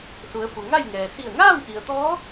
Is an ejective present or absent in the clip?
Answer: absent